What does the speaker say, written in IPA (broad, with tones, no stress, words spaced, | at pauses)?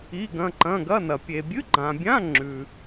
i˧˥˧ɡɐ̃˧˥˧ǃɐ̃˧˥˧ ɡɐ˧˥˧nɐ˨ pʲe˨bʲɨ˧˥˧ɡ͡ǃã˨bʲã˧˥˧ ŋ͡ǁʉ˨